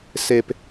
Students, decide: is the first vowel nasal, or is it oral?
oral